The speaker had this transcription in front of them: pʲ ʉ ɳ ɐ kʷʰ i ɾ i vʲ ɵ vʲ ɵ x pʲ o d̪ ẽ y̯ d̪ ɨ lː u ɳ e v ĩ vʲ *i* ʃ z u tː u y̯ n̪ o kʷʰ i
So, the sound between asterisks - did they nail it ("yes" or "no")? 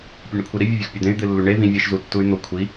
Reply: no